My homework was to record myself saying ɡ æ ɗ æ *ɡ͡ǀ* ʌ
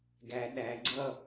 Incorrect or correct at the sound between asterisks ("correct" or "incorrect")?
correct